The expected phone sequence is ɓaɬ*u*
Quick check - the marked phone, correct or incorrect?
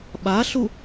correct